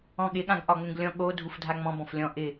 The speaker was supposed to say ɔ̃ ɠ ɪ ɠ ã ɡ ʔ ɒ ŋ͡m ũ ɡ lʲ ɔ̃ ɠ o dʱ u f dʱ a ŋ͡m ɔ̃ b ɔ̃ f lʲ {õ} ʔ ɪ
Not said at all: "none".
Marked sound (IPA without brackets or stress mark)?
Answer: ɔ̃